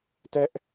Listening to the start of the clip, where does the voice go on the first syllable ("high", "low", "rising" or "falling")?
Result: high